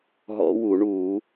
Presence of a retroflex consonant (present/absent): present